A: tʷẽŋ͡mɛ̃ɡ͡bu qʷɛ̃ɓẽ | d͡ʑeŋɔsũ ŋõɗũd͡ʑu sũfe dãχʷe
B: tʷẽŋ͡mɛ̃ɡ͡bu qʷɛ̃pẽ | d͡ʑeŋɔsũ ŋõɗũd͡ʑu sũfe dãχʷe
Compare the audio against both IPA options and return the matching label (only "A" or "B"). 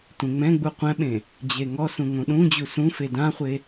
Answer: A